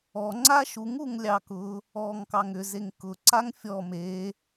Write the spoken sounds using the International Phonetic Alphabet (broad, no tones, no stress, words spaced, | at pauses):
ɔŋ͡ǀa ʃuŋuŋ lʲɑkʊ | ɔːŋkɑŋʏ zeŋkʊǀaŋ fʲɔ me